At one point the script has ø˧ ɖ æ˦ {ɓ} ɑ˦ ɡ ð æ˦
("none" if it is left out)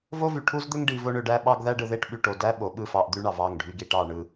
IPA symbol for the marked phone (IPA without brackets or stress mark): ɓ